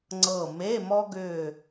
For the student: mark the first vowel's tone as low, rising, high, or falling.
falling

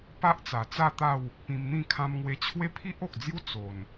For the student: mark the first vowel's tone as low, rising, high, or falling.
high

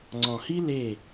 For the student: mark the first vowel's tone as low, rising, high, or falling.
low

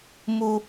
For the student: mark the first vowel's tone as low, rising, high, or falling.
high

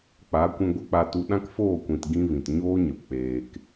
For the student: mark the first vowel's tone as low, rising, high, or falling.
rising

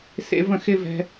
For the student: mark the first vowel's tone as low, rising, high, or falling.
high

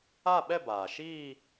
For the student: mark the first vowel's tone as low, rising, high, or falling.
falling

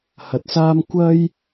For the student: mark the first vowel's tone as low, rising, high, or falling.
low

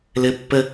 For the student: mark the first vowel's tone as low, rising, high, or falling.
high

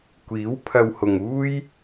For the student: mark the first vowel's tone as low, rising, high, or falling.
rising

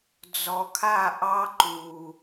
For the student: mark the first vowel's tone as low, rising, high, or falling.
low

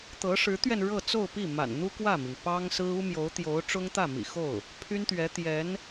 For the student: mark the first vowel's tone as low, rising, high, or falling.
rising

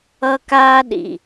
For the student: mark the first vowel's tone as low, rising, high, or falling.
high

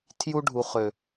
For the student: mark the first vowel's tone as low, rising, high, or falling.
high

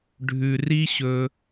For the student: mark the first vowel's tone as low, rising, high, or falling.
low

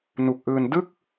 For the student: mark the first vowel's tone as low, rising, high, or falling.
low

